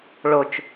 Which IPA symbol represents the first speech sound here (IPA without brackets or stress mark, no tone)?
ɭ